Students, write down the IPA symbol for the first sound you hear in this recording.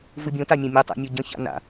v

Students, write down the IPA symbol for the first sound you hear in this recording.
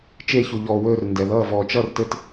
t͡ʃ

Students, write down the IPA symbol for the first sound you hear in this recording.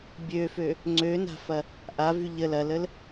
bʲ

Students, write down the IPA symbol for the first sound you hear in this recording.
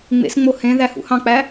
ŋ͡m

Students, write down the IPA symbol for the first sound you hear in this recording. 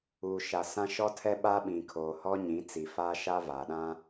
uː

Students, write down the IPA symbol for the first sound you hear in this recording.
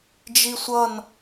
d͡ʒ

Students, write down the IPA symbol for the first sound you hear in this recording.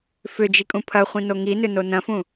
f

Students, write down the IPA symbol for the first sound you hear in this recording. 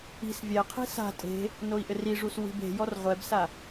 i̤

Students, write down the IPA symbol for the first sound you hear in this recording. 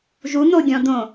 ʒ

